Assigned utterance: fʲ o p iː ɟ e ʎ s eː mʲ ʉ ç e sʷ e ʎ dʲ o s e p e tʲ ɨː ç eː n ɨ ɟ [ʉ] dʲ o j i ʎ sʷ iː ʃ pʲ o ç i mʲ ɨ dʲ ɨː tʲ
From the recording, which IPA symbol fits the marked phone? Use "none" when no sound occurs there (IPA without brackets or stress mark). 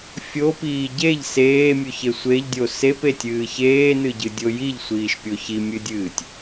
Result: ɨ